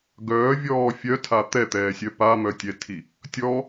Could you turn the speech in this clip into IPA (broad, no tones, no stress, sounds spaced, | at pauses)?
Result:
ɡ œː vʲ ɔː fʲ œ tʰ a t̪ ɛ t̪ ɛː sʲ œ p a m œ tʲ ɛ tʰ i | tʲ ɔ